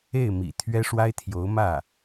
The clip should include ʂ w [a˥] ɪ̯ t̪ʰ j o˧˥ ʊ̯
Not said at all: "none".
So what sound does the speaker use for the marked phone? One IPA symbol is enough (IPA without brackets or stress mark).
a˥